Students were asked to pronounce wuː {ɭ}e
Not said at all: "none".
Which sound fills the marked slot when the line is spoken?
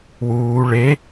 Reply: ɭ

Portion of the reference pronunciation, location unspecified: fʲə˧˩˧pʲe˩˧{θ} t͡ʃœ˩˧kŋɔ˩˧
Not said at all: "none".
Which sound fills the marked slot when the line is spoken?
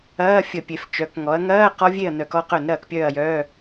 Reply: f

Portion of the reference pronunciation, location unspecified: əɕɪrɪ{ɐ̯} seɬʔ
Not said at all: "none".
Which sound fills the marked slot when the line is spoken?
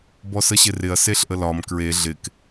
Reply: ɐ̯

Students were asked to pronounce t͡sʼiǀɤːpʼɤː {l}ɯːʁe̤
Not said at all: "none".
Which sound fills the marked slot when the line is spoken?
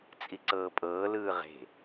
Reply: l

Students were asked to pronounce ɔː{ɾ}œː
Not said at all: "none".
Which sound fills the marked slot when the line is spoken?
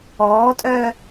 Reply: tʼ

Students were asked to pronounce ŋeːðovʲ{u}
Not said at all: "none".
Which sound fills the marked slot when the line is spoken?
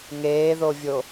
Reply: o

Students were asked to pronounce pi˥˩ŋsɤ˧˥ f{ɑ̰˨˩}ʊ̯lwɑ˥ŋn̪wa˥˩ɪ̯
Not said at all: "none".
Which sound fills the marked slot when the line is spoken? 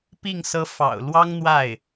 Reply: ɑ̰˨˩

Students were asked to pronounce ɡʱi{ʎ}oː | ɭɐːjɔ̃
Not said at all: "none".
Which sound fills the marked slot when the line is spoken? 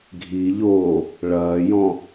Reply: ʎ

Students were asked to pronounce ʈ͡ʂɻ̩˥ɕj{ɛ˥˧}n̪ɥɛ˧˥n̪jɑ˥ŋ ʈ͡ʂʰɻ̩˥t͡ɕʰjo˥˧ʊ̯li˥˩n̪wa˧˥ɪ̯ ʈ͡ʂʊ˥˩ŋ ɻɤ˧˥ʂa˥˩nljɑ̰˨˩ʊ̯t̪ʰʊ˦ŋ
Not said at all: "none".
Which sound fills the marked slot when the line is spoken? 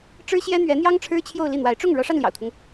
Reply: ɛ˥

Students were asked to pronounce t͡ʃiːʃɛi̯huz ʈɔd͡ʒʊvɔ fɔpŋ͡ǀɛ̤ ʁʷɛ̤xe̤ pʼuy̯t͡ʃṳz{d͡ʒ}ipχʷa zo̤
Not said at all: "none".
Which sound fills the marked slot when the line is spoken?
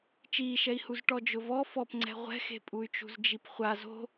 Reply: d͡ʒ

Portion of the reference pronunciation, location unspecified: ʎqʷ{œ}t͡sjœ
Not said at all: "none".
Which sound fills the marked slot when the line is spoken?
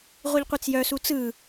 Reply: ɛ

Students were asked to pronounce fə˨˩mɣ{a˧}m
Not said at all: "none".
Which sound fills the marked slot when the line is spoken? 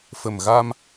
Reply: a˧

